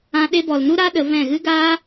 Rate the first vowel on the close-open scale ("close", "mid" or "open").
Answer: open